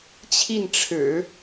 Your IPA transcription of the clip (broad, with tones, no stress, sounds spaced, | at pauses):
t͡ɕʰ i˥˩ n ʈ͡ʂʰ ɻ̩˨˩˦